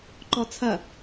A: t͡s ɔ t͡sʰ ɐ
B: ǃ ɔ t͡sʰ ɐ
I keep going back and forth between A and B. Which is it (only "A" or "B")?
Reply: B